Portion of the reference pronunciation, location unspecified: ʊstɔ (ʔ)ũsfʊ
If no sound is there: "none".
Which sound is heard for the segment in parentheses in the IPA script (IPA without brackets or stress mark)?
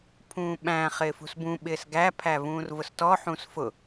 ħ